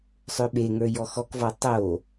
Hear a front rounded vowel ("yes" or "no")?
yes